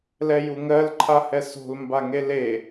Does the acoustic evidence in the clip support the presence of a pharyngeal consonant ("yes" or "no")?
no